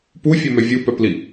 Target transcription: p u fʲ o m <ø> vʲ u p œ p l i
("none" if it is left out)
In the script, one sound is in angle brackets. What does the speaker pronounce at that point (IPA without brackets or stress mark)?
œ